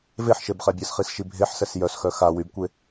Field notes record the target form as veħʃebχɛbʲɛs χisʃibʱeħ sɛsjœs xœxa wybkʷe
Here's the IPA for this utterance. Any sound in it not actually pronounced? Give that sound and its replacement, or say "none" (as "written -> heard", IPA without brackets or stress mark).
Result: none